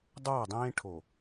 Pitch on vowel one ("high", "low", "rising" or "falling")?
falling